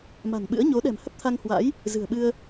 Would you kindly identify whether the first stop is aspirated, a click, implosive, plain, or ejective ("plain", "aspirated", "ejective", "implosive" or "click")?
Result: implosive